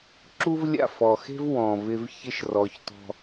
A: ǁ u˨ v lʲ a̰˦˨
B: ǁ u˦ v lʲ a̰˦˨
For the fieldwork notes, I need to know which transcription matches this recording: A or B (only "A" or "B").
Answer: B